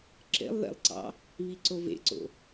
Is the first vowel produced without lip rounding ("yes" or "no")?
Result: yes